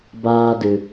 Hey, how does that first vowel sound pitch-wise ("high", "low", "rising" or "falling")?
high